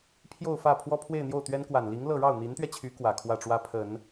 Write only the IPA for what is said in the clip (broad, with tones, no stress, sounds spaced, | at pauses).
pʰ j o˥˧ ʊ̯ f ä˥˩ pʰ w ɔ˥ pʰ w e˥˧ ɪ̯ n̪ j o˥˩ ʊ̯ t̪ ɥ ɛ˥ n k w a˨˩ n l i˧˥ ŋ l ɤ˥˧ ɻ ɑ˥˩ ʊ̯ n̪ i˧˥ n t̪ ɥ ɛ˧ t͡ɕʰ y˧˥ k w ä˨˩ kʰ w ä˥˩ ʈ͡ʂ w ä˥ pʰ ə˨˩˦ n